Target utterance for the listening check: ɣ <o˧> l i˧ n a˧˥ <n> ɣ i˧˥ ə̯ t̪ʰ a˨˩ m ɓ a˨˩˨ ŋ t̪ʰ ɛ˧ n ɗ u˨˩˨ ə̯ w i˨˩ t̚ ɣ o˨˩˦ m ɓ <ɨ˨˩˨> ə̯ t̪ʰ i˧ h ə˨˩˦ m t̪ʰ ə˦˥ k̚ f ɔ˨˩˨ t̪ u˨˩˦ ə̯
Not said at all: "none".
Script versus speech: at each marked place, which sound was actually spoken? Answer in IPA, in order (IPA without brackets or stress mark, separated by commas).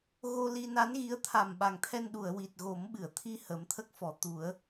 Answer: o˧, n, ɨ˨˩˨